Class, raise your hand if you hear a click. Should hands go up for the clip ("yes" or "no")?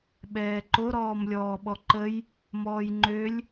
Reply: yes